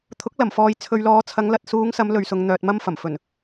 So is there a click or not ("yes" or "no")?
no